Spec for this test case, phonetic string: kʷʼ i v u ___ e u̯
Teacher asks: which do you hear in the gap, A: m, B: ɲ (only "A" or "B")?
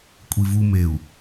A